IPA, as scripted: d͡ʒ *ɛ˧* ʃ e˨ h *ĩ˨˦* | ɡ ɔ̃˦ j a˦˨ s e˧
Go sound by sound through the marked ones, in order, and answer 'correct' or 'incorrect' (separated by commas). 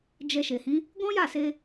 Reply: correct, correct